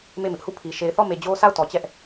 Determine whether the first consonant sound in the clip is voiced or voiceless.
voiced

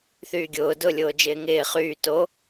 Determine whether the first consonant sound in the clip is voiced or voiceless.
voiceless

